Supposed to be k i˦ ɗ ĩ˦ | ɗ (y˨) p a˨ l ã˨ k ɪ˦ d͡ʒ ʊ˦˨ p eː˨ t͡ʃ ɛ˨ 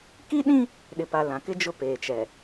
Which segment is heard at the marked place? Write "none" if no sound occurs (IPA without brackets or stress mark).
ɪ˨